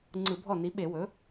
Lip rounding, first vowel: unrounded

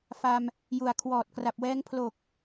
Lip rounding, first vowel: unrounded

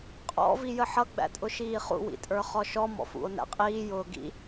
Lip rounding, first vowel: rounded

